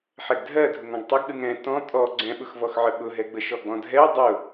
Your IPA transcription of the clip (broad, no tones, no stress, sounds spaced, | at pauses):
ħ ɛ ɡ dʱ ɜ dʱ ʊ ŋ ɔ̃ ɡ tˤ ʊ ɡ ɗ ɯ ŋ ɛ̃ t ɔ̃ tʼ ɔ ɡ͡ǀ ɛ̃ ɓ ʊ x v ɔ x ʕ ə ɓ ʊ ɦ ɛ ɡ͡b ə ʃ ɔ ɡ͡b ɔ̃ dʱ ɛ w dˤ ʊ